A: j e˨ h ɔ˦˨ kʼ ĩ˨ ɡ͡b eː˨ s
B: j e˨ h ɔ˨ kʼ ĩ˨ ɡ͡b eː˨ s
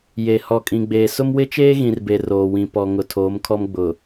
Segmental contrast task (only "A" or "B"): B